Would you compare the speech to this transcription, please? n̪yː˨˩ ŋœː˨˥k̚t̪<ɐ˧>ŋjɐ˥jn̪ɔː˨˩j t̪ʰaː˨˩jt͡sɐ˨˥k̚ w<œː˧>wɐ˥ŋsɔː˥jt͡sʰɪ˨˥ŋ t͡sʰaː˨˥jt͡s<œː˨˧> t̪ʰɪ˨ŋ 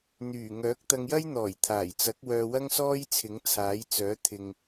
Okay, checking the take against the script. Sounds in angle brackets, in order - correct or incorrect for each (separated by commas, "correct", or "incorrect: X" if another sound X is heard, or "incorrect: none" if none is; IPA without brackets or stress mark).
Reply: correct, correct, incorrect: œː˨˥